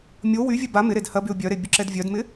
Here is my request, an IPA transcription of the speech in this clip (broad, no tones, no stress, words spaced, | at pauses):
mʲo wyvʲɛ ba mɪɾed hɐbyʊ̯ bʲœɾe bʲʊǁɛdvʲœdmɪ